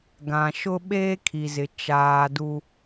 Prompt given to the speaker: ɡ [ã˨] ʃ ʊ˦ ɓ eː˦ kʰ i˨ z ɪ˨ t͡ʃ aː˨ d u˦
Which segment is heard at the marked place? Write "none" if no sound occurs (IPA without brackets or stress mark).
ã˨